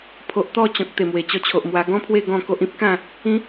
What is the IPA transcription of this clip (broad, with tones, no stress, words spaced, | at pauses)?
pʰo˨ʔt̪ɔ˥˧t͡ɕɔ̃˨k̚ t̪e˨˩mwe˨˩ t͡ɕɔ˧t͡ɕʰo˨ʔmwa˧ ɡɔ̃˦pʰwe˥˧ ɡɔ̃˥˧ ko˦ʔĩ˦p̚ kã˥˧ | ĩ˨˦